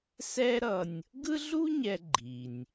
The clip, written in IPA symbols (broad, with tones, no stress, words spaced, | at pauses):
sɛ˦ɾʌ˨nʲ | ɡɯ˥ɮu˥ɲɛ˨ ɡ͡ǃi˩nʲ